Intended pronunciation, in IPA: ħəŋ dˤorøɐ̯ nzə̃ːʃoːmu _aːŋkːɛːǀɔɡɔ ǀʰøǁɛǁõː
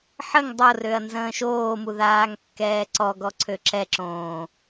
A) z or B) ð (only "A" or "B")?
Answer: B